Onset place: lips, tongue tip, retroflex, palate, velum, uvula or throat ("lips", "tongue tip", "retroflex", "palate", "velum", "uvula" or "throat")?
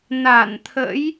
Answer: tongue tip